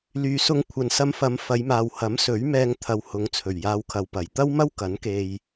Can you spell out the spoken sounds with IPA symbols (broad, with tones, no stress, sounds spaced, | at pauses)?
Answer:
l yː˨ s ʊ˧ ŋ kʷʰ ɐ˨ n s ɐ˧ m f ɐ˨˧ m f ɐ˨˧ j m aː˨ w h ɐ˨˥ m s ɵ˨˥ ɥ m ɛː˧ ŋ t̪ʰ ɐ˨ w h ʊ˨˧ ŋ t͡sʰ ɵ˨˩ ɥ j aː˧ w kʰ ɐ˨ w p ɐ˨˩ j t̪ ɐ˥ w m ɐ˥ w k ɐ˨˥ n k e˧ j